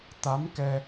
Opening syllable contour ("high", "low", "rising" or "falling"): rising